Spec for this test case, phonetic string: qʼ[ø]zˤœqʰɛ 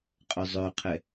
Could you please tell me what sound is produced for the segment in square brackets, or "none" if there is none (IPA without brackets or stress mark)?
œ